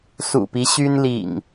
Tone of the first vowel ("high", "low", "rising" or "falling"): low